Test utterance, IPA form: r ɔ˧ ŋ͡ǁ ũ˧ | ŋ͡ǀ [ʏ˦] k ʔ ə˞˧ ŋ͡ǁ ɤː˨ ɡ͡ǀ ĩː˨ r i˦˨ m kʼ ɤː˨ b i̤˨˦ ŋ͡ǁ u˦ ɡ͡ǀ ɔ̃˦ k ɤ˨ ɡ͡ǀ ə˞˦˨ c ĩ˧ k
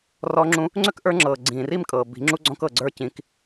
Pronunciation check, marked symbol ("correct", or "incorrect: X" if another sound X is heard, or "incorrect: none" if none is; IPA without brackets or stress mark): correct